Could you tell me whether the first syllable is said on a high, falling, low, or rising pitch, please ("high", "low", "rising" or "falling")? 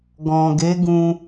low